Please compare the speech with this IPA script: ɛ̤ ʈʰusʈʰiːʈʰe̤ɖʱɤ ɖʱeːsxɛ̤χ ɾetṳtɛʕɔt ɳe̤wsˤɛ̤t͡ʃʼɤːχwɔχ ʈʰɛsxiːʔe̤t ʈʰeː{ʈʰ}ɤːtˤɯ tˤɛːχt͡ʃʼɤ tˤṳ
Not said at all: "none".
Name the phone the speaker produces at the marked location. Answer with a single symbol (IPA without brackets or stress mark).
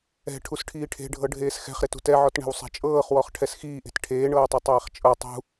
ɳ